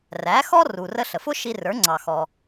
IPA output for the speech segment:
r æ˩˥ x ɔ˥ r u˩ r ə˧ ɬ ə˩ f ʊ˥ ʃ i˧ r ə˞˩˥ ŋ͡ǀ ɑ˩ x ɔ˩

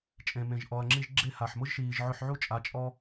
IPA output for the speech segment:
t͡ʃʼ ẽ˨ m ẽ˨ ʒ ʔ ɔ˨ ɐ̯ ŋ͡ǁ i˧ ʒ ɡ͡ǁ e˦ h a˨ ħ m ʊ˦ ʒ ʃ iː˨ ʒ ʕ ʊ˧ ħ ʕ u˦ t͡ʃʼ a˧ t͡ʃʼ ɔ˦

